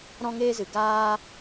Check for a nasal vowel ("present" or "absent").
present